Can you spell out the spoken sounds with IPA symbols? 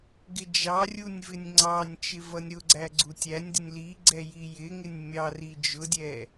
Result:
ɡɪd͡ʒɑrʲunʲ vɪnʲŋ͡ǀɑnʲt͡ʃɪ vʌnʲɾʊɡ͡ǀæ ɡ͡ǀutʲænʲdɪnʲ liɡ͡ǀɛ jijɪŋɪnʲ mʲɑri d͡ʒʊdʲɛ

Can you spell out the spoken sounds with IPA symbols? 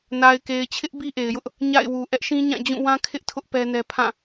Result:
na˨ɪ̯ke˨ɪ̯t͡ɕʰɪ˦ʔ bi˦ʔe˨ɪ̯jʊ˦ʔ | ɲa̰˦˨ɪ̯wu˨ ʔɛ˦ʔʃĩ˦ɲã˦˨d͡ʑũ˦˨ wã˦ kʰɪ˦ʔtʰʊ˦ʔ pɛ˦nɛ˦ pʰã˦˨

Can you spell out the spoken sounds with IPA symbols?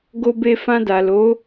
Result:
ɡo˧be˧ fã˧da˨lo˨˦

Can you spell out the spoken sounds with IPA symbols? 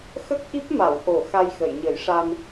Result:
xə˦˥k̚ʔi˦˥p̚ma˨˩˨w ʔo˨˩˨ xa˧jxə˨˩˨j ɲə˨˩˦jʂa˧n

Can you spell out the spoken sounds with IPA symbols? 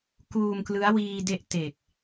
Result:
kuː˧mklɯ˦˥a̯ wiː˧de˦˥ʔ te˨˩k̚

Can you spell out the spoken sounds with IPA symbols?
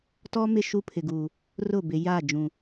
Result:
tɔ˦mɪ˦˨ ʃu˦pʰɪ˨ɡu˨ | rʊ˦˨bɪ˨ ja˦˨ d͡ʒũ˨

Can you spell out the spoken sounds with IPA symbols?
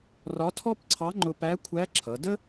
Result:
rɒ˧˥tʰɔ˥pǀʰɑ˧˥ŋ͡ǃʊ˧ pæ˧˥kʷʰæ˧˥ǁʰʌ˩˧də˥

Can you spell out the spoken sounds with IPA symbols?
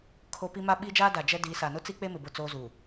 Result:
kʰo˦pi˦ ma˦ɓi˦d͡ʒaː˦ da˨d͡ʒɛ˦diː˨˦sa˨ nʊ˦t͡si˦k͡pe˦mɪ˨ bʊ˦˨t͡soː˦zuː˨

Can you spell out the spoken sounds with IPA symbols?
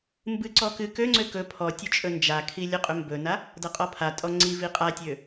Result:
mbɨǀɔ kɨ køŋ͡ǀø kɵ pʰɔtʲɵ t͡ʃʼɵnd͡ʒakʰi lʲɵqʼɵmbɵna | dʌqʼɔpʰatʼɔ ŋ͡ǀi viqʼatʲø

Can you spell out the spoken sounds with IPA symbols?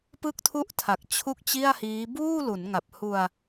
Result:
pɯ˥˩k̚tʰu˥˩ʔtʰa˨˩k̚ t͡ɕʰu˥˩k̚t͡ɕi˥˩a̯hiː˦˥ buː˥˩lu˩˦nŋa˨˩p̚ hu˧a̯

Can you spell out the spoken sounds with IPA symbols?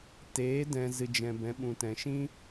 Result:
teː˨˦dɛ̃˨ zɨ˨d͡ʒɛ̃˨ bɛ̃˨˦ɓũ˨tɛ̃˨ ʃĩ˦

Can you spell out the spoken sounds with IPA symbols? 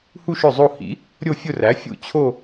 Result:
hu˥˧ʃɵ˥˩zˤo˥˧ hḭ˩˥ | ɾʲo˥˧ fʲʊ˥˧ræ˩˥ fʲṵ˥˩t͡ɕʰo˥˧

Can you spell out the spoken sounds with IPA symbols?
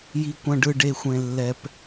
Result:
ji˧kʷɐ̃˧ɖɯ˧ ɖe˧xʷẽ˧ lːɛ˧p

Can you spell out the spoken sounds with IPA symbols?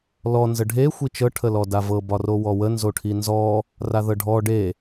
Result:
lɔ nzəɖʱe xʷit͡ʃɤ ʈʰəlɔdavɤ bɒrowɔwə nzoʈʰinzɔ | raðɤɖʱɔ ɖe

